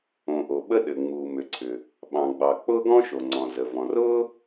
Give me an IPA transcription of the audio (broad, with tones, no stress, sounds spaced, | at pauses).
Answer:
õ˩ ʔ o˩ ɓ ə˥ ɗ ɘ˩ ŋ͡m uː˩ m ʏ˩ ǀʰ ʏ˩ | ɓ ɑ̃˩ ɡ͡b ɑ˩ k͡p ʊː˥ ɡ ɔ̃˥ ʃ o˩ ŋ͡ǀ ɔ̃˩ z ə˩ v ɔ̃˩ r ʊː˥